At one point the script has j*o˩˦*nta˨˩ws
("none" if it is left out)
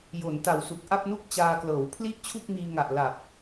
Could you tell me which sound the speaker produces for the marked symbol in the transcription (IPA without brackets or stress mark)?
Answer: o˩˦